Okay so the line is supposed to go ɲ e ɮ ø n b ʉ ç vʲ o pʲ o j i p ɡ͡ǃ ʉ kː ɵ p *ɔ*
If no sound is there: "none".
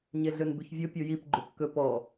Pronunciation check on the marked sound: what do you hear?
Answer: ɔ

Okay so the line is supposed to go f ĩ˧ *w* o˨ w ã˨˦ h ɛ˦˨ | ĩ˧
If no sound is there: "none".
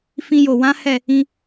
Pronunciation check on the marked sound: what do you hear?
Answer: j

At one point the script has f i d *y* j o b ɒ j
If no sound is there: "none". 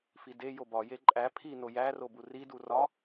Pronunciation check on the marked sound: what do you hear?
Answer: e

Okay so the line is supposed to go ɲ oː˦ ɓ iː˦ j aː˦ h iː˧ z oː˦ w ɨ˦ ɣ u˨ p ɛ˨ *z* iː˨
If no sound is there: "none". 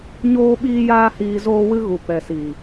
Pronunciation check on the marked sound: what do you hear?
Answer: s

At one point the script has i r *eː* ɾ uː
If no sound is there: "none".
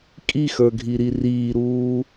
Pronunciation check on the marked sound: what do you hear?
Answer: iː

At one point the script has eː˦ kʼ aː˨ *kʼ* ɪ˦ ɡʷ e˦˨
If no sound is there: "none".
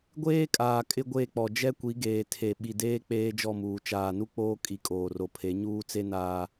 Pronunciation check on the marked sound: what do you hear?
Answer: kʼ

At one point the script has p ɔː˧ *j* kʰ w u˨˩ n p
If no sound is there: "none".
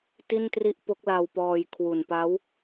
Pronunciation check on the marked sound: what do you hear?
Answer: j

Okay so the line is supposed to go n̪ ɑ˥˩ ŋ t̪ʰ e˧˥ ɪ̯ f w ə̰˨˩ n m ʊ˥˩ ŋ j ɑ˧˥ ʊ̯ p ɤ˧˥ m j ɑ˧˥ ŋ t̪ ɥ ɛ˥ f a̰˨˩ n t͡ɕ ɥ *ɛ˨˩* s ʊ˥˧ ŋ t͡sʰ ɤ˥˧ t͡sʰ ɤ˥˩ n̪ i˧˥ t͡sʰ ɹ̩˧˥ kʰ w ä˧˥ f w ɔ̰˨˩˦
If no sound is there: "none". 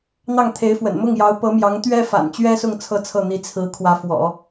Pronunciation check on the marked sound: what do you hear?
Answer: ɛ˥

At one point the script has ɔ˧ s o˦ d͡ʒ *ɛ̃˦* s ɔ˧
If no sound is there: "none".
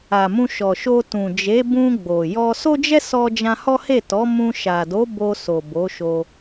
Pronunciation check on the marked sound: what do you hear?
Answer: ɛ˦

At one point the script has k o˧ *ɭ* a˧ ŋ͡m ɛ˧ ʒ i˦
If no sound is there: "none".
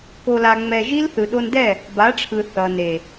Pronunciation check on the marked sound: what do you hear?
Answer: l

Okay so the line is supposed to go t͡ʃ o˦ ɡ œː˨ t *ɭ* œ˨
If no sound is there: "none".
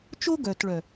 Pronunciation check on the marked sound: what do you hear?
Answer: ɭ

